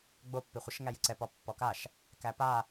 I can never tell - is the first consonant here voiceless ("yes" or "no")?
no